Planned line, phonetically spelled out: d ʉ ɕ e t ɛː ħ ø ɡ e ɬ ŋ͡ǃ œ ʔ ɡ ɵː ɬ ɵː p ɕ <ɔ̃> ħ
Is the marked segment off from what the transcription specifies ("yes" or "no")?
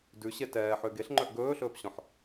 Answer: no